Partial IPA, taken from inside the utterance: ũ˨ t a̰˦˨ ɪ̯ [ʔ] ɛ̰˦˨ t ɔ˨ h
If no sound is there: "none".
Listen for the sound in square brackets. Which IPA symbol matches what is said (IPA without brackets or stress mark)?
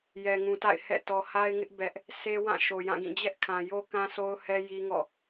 h